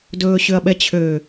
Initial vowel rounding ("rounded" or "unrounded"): rounded